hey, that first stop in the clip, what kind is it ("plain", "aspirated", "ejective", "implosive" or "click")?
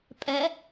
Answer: ejective